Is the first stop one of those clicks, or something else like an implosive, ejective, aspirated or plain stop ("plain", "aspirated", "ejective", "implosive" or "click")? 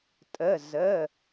ejective